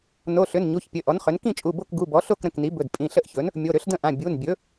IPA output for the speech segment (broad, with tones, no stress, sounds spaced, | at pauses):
n o˩˧˩ ɬ ʏ˩˧˩ n ɲ u˩˧˩ ç pʲ ɘ˩˧˩ ʔ ɔ˩˥ n χ ʏ˩˥ n k ĩ˥˨ t͡ʃʼ u˩˧˩ b o˥˨ k ɡ u˩˧˩ b ɔ˩˥ ɬ o˥˨ k ɾ ə̃˩˧˩ k n i˩˥ b ɵ˩˧˩ d pʼ ĩ˩˧˩ ɬ ə˥˨ ʔ ç ɵ˩˥ n | mʲ o˩˧˩ ɾ ʏ˩˥ ɬ d ə̃˥˨ ʔ ã˩˧˩ bʲ u˩˧˩ n bʲ ɵ˩˥